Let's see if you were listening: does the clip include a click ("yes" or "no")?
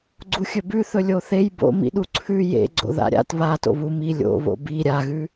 yes